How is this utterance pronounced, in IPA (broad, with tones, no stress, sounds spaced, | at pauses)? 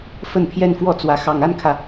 f ə˥˧ n pʰ j ɛ˥˧ n f w ɔ˥˩ t͡s w ä˧˥ x ɑ˨˩ ŋ a˥˩ n kʰ ä˩